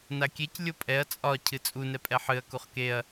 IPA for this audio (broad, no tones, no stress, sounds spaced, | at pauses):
n a kʲ e c lʲ o pʼ ɛ ɐ̯ t͡sʼ ɒ cʰ ɨ t͡sʼ u n ɛ pʼ ɛ ħ ɨ ɐ̯ k u χ k e ɐ̯